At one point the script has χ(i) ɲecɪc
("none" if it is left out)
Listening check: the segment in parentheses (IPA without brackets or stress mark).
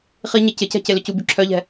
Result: i